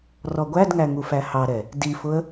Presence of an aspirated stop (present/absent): absent